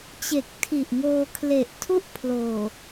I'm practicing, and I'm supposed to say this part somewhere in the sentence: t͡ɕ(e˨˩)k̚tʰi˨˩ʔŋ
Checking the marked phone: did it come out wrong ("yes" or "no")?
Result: no